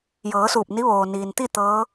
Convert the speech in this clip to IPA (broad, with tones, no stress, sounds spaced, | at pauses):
j ɤː˩˧ s uː˧˩ p̚ n i˧˥ ʋ oː˩ n iː˩ n t̪ i˥˨ t̪ ɤː˧˥